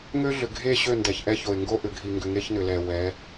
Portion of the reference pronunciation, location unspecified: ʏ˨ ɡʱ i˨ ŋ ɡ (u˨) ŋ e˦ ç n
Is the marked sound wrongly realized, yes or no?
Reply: yes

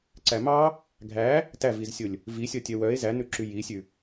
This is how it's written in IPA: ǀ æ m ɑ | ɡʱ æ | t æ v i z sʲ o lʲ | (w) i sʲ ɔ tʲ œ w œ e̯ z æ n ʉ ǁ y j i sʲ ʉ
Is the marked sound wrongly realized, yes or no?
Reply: yes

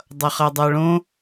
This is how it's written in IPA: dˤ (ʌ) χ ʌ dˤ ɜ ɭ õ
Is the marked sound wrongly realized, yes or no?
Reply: no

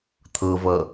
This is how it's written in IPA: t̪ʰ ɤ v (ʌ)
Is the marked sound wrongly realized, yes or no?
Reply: no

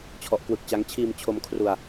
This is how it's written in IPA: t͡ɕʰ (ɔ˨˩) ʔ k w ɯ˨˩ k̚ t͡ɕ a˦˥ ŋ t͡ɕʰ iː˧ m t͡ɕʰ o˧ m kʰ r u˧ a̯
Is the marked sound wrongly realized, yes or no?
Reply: no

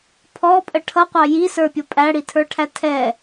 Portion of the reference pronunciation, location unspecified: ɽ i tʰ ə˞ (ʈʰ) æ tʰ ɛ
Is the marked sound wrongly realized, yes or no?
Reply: no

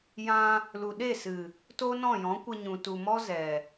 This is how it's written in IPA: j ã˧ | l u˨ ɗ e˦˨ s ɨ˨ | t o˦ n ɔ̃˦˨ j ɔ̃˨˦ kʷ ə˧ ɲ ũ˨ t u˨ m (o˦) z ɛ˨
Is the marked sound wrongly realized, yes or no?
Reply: yes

